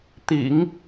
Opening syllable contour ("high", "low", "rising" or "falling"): low